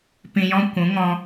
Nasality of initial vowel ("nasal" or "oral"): nasal